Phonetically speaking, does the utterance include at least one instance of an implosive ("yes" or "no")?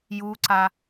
no